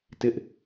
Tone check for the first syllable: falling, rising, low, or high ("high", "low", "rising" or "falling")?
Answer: high